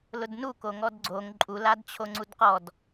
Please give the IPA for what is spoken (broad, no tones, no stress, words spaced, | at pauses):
lʊdnu koŋɔdɡ͡ǀoŋ ǃʼu ladt͡ɕʰoŋ͡ǀudqɔd